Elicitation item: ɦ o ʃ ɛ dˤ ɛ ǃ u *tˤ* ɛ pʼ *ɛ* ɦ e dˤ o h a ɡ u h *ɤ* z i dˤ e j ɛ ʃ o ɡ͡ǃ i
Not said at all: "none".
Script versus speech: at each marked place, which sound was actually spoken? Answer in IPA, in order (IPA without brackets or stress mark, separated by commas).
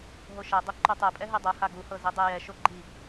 tˤ, ɛ, ɤ